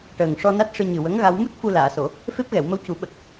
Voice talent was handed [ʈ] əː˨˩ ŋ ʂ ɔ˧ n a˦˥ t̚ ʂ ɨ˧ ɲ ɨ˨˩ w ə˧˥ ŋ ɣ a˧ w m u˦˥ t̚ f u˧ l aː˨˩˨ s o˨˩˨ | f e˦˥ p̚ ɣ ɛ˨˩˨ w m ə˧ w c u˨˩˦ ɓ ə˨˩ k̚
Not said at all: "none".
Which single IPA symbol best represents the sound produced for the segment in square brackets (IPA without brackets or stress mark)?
ʈ